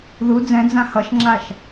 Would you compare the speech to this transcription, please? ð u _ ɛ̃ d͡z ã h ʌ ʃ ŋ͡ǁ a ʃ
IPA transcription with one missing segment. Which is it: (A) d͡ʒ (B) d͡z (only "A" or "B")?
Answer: B